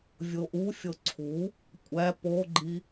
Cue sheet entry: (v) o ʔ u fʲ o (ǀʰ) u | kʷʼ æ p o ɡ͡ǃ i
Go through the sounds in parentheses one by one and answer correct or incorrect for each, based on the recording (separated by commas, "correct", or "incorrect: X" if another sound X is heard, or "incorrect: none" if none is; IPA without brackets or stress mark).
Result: incorrect: vʲ, correct